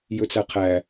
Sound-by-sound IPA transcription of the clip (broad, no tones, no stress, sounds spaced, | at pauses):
j ɵ t͡s æ qʰ æ